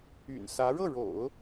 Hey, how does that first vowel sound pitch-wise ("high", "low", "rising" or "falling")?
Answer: low